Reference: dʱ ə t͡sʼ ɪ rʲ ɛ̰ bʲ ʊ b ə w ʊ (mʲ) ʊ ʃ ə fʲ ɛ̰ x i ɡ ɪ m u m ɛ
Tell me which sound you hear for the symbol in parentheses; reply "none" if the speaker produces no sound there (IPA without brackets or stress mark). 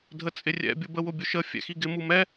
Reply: bʲ